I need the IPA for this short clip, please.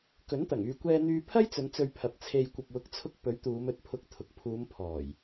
k ɵ˨˥ n t̪ ɐ˨˩ ŋ yː˨ kʷ ɛː˧ n̪ yː˧ pʰ ɐ˥ j t͡s ɵ˨˧ n t͡s ɵ˧ ɥ pʰ ɐ˨ p̚ t͡sʰ e˧ j kʷ ɐ˨ p̚ w ʊ˨˥ k̚ t͡sʰ ʊ˧ k̚ p ɵ˨˥ ɥ t̪ uː˨˧ m ɵ˨˥ t̚ pʰ ʊ˧ k̚ t̪ʰ ʊ˨ k̚ pʰ uː˨˧ m pʰ ɔː˨˩ j

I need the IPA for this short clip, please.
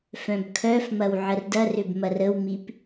f œ̃ b kʰ œ f m ɐ w ʕ ə r d ɐ r ʏ b m ɐ r ə w m i p

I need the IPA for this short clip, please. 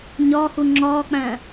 ɲ ɒː h u ŋ͡ǁ ɒː k͡p æ̃ː

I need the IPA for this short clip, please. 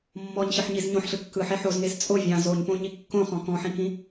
mː ɔ ɲ ɕ ɯ ħ ɲ i z ɲ õ ħ ɬ ɯ kː ɯ ħ e ħ o z ŋ e z t͡sʼ o vʲ ɑ̃ z o ɲ p õ ɲ i kː õ χ ɔ̃ k ɔ̃ ħ ĩ k ĩ

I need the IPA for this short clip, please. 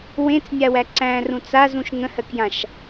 w ẽ t͡s nʲ a w æ ǀ æ̃ r ũ t͡s a z ũ ʃ ŋ ə̃ h ɜ k j ã ʃ

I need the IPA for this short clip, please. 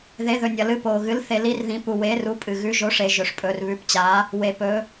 ð e˩˧ ð ɵ˩ nʲ ɐ˩ l ɨ˩˧ p oː˩ ɣ ɨ˩˧ l θ e˩ l i˩˧ r ð ĩ˩ p u˩ w eː˩˧ r u˩˧ pʼ ɨ˩ ɣ ʉ˩˧ ʒ o˩˧ ʂ e˩ ʒ ɵ˩ ʂ pʼ ɵː˩ r β ʉ˩˧ p t͡ɕ aː˩˧ | w e˩ p ɵː˩˧

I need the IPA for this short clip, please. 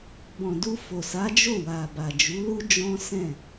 b ɔ̃˨ d u˧ f o˨ s a˨˦ d͡ʒ o˦˨ w a˨ b a˨ d͡ʒ u˨˦ l u˦ d͡ʒ ɔ̃˦ s ɛ̃˦˨

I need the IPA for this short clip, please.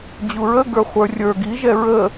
d͡ʑ u ɹ ə ɡ ə˞ χʷ ə˞ rʲ ə˞ ɡ i ʒ ɛ ɹ ə

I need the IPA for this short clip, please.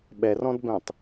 ɓ ɛ r ɔ̃ d b ɛ̃ tˤ

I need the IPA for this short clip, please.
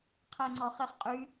qʰ æ ŋ͡ǀ ɔ χ e χ qʼ y

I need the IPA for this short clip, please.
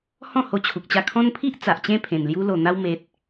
h ɔ̃˥˧ h o˧ t͡ɕʰ u˨ k̚ t͡ɕ a˧ kʰ ɔ̃˦ n pʰ i˦ ʔ t͡s a˨ ʔ t͡ɕ ẽ˥˧ pʰ ẽ˨˩ n l j u˧ l o˨˩ n̪ a˧ w m e˨ t̚

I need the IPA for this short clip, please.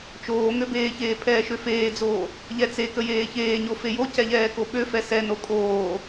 t͡ʃ oː ŋ ø b eː ç eː pʰ ɛː ʃ ø f eː d͡z oː | ʎ ɛ t͡s e k ə j eː ç eː ɲ o f e j o c ɛ ʎ ɛː k o ɓ ø f ɛ s ɛ n o kʼ oː

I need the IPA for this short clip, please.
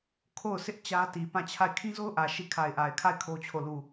kʰ o˦˨ ʊ̯ sʰ ɪ˦ ʔ t͡ɕ ä˦ t i˨ p ã˦˨ t͡ɕʰ a˦˨ ɪ̯ kʰ ĩ˦ z o˦ ʊ̯ ʔ ä˨ ʃ i˦˨ kʰ a˨ ɪ̯ ʔ a˨ ɪ̯ kʰ a˦˨ ɪ̯ kʰ o˦ t͡ɕʰ o˦˨ l u˦˨

